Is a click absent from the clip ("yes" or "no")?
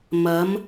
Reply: yes